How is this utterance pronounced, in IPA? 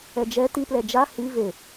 ɛd͡ʒɛ tiplɛ d͡ʒa hi ve

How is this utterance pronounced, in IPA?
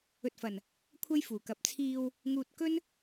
ɵ˨t̚fɐ˨˩n | kʷʰɐ˥jfuː˨˩kɐ˨˥p̚ t͡sʰiː˨w | ŋuː˨t̚ kɵ˥n

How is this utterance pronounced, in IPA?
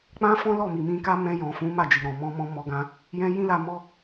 k͡pã˦fɔ̃˦lɔ˦˨mi˨ mĩ˧ka˦ mɛ̃˧jɔ̃˨fũ˨˦ ma˦˨d͡ʒi˨ɾɔ̃˨ mɔ̃˧mɔ̃˧ mɔ˧ɡã˧ | jɛ̃˦ jĩ˦la˧ mɔ˦

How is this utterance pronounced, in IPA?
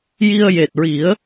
ji˧ə̯je˨˩t̚ɹi˨˩˦ə̯

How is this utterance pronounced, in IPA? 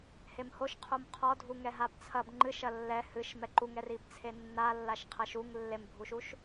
hemhoʃ qʰomqʰɔ dʱuŋɛɦabt͡sʰɐb ŋ͡ǃɨʃ ɐlːɛ hɨʃ mɛǃuŋɛr ibt͡sʰenːalːaʃ qʰɐʃuŋ lːembʱuʃuʃ

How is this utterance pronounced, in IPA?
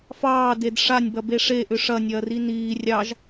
fɑːded ʂanʲbɐbe ʂeʔʏ ʂɐnʲɐːri niː rʲɑʒ

